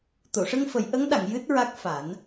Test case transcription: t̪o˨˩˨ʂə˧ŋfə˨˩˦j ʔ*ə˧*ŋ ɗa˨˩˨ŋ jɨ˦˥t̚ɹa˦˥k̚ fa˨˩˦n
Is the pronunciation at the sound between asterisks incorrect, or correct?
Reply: incorrect